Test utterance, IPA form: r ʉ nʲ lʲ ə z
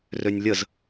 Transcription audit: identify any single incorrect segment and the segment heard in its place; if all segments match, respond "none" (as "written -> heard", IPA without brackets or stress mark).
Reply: ʉ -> ø